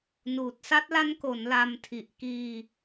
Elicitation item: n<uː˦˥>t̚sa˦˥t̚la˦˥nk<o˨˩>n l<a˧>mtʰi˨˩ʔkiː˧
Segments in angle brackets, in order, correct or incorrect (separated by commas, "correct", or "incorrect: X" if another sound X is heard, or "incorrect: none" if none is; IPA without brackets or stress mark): incorrect: uː˨˩, incorrect: o˩˦, correct